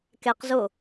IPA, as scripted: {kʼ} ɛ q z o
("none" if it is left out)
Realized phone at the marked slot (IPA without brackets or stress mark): k